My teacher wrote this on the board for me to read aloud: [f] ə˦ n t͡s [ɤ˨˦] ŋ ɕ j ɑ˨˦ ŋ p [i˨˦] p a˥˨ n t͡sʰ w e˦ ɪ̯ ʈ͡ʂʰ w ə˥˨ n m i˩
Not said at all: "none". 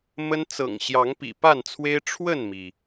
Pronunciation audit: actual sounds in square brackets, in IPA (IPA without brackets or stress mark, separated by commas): m, ɤ̰˨˩, ḭ˨˩